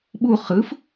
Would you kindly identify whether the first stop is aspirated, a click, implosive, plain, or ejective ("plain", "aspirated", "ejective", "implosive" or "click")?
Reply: implosive